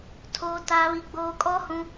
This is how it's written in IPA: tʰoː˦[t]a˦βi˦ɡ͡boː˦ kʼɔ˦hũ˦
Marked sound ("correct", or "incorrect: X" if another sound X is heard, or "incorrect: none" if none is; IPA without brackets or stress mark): correct